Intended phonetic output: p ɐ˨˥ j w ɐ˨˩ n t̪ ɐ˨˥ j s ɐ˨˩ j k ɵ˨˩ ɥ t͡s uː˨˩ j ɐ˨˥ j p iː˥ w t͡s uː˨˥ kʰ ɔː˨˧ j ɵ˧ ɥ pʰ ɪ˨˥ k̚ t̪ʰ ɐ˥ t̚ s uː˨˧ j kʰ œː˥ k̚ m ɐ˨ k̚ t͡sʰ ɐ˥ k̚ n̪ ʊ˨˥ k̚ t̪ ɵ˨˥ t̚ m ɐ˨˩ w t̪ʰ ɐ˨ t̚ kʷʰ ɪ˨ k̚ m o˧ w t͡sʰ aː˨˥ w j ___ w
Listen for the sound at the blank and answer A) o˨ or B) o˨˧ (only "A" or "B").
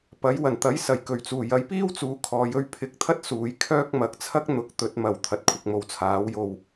A